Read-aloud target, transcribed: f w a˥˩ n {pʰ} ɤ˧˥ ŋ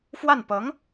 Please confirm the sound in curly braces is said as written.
no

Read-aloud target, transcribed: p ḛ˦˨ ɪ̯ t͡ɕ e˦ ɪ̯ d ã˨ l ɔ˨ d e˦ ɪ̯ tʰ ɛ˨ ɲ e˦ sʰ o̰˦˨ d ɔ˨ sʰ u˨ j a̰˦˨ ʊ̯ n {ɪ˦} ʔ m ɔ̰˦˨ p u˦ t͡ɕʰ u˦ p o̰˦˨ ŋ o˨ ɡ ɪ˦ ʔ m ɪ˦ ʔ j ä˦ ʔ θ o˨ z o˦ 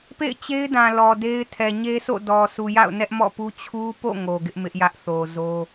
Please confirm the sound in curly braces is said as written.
no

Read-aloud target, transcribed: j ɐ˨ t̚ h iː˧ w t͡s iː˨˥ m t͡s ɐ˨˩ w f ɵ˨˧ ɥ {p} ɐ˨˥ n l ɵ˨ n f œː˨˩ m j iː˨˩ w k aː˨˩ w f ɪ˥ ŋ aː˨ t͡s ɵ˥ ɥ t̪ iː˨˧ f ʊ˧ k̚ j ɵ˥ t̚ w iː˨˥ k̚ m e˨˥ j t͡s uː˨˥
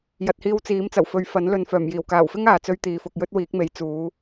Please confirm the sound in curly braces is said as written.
no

